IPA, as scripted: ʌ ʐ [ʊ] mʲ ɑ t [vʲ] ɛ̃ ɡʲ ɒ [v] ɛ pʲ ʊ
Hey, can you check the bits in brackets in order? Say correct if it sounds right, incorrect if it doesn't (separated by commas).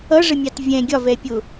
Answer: incorrect, correct, correct